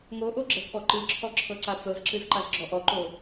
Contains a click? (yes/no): yes